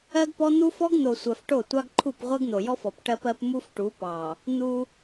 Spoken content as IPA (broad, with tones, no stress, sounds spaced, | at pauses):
ɜ˦ ɡ p ɔ˦ n̪ u˦ f ɔ˦ ɡ n̪ o˨ sʷ ɜ˨ f ʈ o˦˨ tʷ ɑ˦ ɡ ǃʰ u˦˨ p ʁʷ ɜ˦ ɡ n̪ o˨ j ɔ˦ f ɔ˨ p ʈ ɜ˦ p ɜ˦ p m u˦ f ʈ u˨˦ p ɑ˨ | n̪ u˦